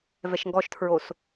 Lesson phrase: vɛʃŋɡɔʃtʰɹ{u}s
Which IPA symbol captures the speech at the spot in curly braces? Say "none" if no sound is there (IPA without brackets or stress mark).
o